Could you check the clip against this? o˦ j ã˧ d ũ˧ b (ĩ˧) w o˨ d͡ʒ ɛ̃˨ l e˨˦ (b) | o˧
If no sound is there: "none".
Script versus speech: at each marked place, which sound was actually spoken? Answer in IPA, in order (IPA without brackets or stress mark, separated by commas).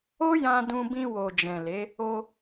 ĩ˧, none